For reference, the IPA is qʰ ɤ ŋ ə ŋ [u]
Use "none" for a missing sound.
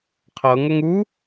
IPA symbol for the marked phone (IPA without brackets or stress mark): u